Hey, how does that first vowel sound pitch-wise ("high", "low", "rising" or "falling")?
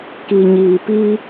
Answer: low